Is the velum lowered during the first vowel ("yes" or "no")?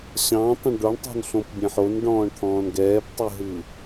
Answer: yes